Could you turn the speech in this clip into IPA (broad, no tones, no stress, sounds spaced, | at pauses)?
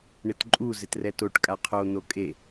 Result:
ɳ ɪ t ǃʼ u z ɪ t r ɛ t o ʈ kʼ a qʰ o n̪ o kʼ e